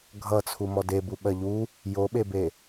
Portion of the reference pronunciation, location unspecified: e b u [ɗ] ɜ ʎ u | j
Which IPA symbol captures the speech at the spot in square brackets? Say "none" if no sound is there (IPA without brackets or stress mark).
ɓ